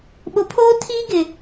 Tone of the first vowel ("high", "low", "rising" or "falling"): rising